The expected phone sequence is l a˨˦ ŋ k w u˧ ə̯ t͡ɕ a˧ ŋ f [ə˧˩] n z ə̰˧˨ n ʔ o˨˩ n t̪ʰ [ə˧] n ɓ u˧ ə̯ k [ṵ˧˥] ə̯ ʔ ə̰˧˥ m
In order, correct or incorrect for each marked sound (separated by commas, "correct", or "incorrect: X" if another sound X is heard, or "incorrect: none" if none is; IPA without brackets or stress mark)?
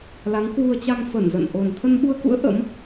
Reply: correct, correct, correct